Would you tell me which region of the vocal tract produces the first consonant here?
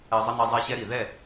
tongue tip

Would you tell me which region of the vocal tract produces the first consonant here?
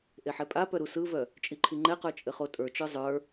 throat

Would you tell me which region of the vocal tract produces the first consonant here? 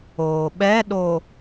lips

